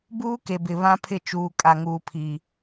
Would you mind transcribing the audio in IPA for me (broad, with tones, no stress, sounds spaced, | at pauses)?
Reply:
b uː˦ k e˨ b ɪ˨ β ã˦ pʰ ɪ˦˨ t͡ʃ uː˨ kʼ a˨ ŋ uː˨ pʰ i˨